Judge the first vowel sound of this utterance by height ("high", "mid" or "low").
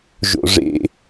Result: mid